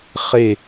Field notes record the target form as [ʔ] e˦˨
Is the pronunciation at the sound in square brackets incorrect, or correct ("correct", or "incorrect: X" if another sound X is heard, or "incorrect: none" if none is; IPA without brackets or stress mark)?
incorrect: χ